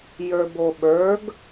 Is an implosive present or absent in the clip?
present